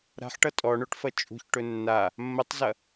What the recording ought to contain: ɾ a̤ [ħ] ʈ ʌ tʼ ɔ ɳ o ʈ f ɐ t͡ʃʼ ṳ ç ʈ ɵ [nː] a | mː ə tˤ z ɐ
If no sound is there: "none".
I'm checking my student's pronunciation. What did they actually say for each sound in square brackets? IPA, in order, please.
ħ, nː

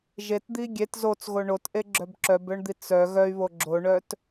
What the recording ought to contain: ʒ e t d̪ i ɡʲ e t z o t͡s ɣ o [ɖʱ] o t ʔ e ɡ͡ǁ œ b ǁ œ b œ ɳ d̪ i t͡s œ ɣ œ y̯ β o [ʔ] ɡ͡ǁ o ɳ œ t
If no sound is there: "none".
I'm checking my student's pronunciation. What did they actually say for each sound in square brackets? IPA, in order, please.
ɳ, none

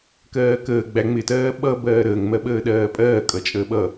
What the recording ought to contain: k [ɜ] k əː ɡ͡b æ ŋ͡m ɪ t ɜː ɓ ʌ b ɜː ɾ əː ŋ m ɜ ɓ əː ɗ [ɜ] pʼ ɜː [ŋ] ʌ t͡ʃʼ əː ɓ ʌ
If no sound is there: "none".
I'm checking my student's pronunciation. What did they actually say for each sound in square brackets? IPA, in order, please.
ɜː, ɜː, kʼ

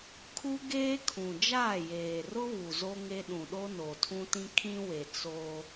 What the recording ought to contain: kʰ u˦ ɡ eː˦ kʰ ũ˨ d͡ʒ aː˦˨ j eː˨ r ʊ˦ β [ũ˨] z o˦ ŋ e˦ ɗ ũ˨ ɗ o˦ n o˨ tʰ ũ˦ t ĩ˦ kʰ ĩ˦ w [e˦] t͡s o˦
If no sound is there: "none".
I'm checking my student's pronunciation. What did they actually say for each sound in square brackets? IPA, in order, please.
u˨, e˨

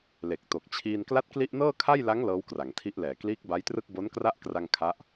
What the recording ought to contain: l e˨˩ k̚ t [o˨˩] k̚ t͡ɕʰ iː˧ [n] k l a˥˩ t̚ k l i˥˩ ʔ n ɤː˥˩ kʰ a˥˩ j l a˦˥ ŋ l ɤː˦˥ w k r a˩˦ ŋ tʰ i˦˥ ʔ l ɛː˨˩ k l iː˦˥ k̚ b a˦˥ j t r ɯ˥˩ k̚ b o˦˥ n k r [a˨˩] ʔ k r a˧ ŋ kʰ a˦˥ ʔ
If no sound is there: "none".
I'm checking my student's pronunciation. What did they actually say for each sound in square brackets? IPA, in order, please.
o˨˩, n, a˥˩

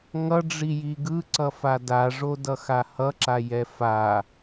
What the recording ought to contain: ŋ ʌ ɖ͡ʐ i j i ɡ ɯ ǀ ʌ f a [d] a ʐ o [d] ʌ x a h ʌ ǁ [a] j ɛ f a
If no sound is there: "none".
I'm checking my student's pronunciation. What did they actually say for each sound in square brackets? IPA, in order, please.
d, d, a

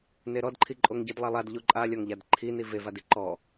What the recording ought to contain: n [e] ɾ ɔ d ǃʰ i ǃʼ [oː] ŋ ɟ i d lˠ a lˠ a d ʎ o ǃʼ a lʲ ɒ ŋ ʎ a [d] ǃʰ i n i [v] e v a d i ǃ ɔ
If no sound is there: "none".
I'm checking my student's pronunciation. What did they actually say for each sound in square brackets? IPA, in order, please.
e, o, d, v

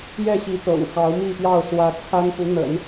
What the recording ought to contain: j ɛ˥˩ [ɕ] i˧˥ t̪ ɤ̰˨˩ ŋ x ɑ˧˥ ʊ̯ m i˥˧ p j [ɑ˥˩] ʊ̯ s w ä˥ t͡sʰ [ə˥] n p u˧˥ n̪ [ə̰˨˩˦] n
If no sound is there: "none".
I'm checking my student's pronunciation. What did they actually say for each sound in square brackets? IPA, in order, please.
ɕ, ɑ˥˩, a˥, ə̰˨˩˦

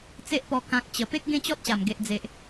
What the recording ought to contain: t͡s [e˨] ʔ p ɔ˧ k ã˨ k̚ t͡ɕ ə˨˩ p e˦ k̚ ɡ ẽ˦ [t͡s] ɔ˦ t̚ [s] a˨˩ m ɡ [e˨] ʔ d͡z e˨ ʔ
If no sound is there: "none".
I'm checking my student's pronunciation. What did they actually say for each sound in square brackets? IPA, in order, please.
e˦, t͡ɕ, ɕ, e˨

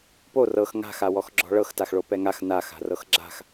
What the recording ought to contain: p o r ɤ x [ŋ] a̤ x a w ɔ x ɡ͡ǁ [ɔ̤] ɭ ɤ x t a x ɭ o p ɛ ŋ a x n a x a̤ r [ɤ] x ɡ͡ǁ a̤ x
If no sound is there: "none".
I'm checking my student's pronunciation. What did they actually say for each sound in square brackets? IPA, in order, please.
ŋ, ɔ̤, ɤ

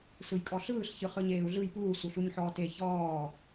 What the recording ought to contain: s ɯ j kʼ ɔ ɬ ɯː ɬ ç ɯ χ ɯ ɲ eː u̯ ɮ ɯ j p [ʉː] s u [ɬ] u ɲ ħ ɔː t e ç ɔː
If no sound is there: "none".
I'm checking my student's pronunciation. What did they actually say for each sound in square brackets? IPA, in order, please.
uː, ɬ

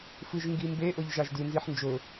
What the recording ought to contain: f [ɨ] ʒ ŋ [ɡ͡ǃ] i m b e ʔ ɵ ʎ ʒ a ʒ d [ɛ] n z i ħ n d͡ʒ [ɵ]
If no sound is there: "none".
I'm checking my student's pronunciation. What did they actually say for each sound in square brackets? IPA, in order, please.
ɨ, ɡ, ɨ, ɵ

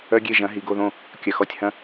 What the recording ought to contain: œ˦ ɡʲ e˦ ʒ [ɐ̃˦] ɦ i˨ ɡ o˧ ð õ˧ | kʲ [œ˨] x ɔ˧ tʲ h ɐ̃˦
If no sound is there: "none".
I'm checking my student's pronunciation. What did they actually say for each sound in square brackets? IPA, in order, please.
ɐ̃˨˦, œ˨

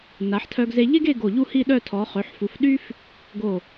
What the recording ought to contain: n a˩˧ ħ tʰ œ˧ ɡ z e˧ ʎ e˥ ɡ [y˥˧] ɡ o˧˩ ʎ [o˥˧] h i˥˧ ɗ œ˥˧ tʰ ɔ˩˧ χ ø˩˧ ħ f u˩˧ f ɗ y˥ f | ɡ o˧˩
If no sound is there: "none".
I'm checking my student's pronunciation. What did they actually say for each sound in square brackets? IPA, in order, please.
e˥˧, u˥˧

